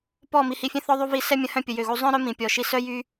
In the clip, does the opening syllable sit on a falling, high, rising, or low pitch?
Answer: falling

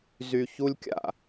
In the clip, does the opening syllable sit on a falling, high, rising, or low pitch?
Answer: low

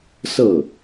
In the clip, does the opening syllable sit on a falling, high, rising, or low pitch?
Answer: falling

